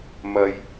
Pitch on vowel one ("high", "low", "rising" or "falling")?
low